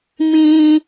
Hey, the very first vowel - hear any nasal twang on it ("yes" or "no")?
yes